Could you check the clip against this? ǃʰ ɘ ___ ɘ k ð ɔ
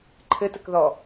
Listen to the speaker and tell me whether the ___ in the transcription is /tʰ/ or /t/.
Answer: t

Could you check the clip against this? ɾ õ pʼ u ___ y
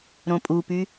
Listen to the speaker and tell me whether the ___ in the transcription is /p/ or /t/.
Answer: p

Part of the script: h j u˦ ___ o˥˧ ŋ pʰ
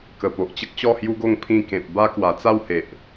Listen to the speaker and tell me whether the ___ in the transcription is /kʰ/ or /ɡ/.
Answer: ɡ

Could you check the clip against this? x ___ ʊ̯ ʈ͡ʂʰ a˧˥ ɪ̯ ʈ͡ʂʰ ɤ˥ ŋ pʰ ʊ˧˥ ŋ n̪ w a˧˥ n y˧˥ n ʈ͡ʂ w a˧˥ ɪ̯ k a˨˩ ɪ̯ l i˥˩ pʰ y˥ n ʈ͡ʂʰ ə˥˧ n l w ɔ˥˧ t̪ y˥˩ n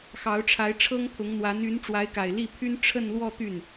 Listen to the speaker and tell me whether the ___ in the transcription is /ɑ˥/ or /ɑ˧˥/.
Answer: ɑ˧˥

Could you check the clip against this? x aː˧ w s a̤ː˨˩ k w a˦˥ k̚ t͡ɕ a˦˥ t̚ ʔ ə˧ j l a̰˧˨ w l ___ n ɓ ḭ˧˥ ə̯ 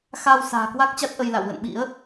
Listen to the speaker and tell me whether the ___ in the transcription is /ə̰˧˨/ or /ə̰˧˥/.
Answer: ə̰˧˨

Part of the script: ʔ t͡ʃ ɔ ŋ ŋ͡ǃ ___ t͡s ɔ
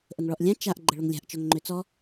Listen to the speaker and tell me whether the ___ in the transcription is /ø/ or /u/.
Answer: ø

